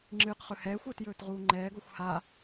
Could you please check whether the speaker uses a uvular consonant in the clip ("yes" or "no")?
yes